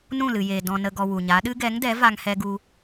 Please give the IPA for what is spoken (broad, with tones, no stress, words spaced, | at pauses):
nũ˦˨lɨ˨jeː˨ dɔ̃˨ nə˨ɡɔ˨ wu˨ɲa˨˦ɗɨ˦ ɡɛ˨˦ŋdɛ˨˦ va˧ŋhɛ˧ ɡu˧